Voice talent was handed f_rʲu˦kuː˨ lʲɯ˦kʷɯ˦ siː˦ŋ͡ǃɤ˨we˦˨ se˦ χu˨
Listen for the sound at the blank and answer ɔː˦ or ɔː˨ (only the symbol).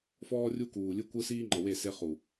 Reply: ɔː˦